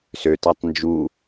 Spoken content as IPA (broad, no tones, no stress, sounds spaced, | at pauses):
s ø t a tˤ n d͡ʒ u